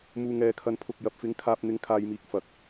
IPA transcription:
m uː˧ ŋ ɛː˧ kʰ ɐ˧ n pʰ ʊ˧ k̚ j ɐ˨ p̚ f ɪ˨˥ ŋ kʰ aː˧ p̚ n̪ ɪ˨˥ ŋ kʰ aː˨ j m iː˨ k̚ f ɐ˨ k̚

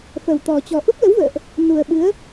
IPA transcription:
f ə˨˩ w t̪ ɔ˨˩ t͡ɕ ɔ˨˩ ʔ u˦˥ p̚ l ə˨˦ w v ə̰ː˧˨ ʔ | n u˨˩ ə̯ ɓ ɨ˨˦ ə̯

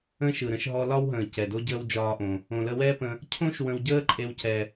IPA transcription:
ə̃ː˦ ʃ ɯ˨ ɾ ə̃˨˦ ʃ ɦ ɔ˧ l ɒ˦ w ɦ ə̃ː˨ c ɛ˨ d o˦ ɟ əː˦ w d͡ʒ ɒː˦ ʔ õ˧ | õ˨ l ə˧ w ɛː˦ p ə̃˧ | cʰ õ˦ ʃ w ə̃˧ w ɟ əː˦ ǃʼ e˦ w c ɛ˧

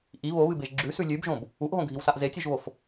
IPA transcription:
ʔ i β o β ɨ b e ʒ ɡ͡ǁ ʉ s ʉ lʲ ʉ b ʒ õ b | u ʔ ɦ õ ɡʱ i w s a ʔ z e tʲ ʉ ʒ β o f

